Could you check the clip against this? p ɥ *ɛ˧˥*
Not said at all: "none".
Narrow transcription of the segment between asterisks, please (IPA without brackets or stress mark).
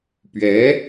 ɛ˧˥